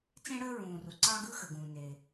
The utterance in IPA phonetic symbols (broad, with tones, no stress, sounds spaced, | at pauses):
t͡s ẽ˧ ɽ əː˧ ɹ ũː˩ r u˩ ǀ ɑ˧ ɡ ɯ˧ x ə˩ ɡ ũː˩ n e˩